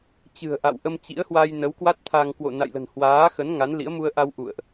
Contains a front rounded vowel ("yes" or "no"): no